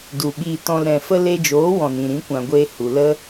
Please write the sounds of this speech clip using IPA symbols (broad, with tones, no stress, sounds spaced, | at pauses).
d u˨ ɓ iː˧ t ɔ̃˧ l ɾ ɛ̃˨ f ə˧ l e˧ d͡ʒ oː˨˦ w ɔ̃˨ n ĩ˨ ɾ ĩ˨˦ kʷ ã˨ ɡʷ eː˧ h u˨ l ə˦